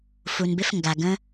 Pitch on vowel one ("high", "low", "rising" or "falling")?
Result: low